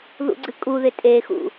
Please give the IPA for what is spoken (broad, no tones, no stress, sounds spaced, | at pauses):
ð ṵ ɡ͡ǀ ɨ kʼ u ð ɪ tʼ e x ṵ